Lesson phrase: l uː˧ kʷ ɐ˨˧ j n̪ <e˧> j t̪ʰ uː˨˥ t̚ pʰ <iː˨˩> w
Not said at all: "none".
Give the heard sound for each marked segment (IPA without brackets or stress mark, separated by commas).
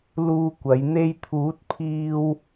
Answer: e˧, iː˧